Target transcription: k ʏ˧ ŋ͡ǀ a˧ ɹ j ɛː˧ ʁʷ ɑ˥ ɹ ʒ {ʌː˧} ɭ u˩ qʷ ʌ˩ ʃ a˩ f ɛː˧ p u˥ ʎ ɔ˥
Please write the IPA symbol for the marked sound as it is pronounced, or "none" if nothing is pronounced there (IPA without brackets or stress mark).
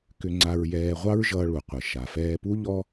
ʌː˧